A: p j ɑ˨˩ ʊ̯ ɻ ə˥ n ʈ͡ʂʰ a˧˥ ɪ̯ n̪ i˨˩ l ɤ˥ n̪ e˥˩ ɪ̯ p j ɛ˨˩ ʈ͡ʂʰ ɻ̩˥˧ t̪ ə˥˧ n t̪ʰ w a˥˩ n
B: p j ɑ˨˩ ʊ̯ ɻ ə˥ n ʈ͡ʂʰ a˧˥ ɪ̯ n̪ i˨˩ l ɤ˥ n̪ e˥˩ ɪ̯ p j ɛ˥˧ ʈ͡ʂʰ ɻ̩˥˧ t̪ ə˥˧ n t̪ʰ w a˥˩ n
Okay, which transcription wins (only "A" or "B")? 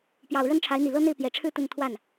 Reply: A